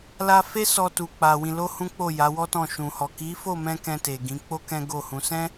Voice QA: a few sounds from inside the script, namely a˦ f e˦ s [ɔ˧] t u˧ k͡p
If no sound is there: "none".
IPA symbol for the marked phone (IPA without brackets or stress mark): ɔ˧